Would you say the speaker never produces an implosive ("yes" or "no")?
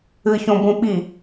no